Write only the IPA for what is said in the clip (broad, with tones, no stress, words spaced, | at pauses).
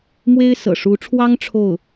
mwe˥ɪ̯sɤ̰˨˩ʂu˧˥ʈ͡ʂʰwɑ˥ŋ ʈ͡ʂʰo˥˩ʊ̯